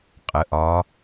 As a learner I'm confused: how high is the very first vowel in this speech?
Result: mid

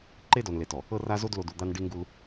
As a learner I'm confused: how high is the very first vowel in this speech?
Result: mid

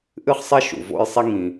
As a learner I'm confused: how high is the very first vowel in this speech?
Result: high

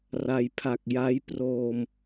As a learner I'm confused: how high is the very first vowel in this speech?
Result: low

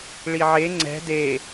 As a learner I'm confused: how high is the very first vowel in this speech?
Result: high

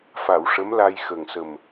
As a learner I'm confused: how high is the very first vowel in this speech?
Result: low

